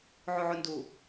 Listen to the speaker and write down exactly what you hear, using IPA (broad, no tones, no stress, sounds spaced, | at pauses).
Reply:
ʕ u ʕ u n d u